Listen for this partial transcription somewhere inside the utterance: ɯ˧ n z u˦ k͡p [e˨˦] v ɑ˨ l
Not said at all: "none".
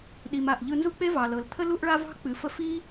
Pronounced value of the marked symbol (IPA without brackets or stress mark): e˦